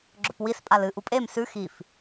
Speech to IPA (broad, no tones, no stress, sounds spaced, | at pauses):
ɡ͡ǁ ɵ p w i s pʼ a l ɨ ʔ u pʼ e m s ʉ x i f